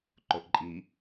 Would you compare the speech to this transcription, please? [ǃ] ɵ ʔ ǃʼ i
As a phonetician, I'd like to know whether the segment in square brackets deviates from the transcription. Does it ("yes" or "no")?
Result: no